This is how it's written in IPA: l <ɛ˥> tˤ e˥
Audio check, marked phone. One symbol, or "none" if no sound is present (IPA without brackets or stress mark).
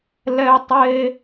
ɛ˥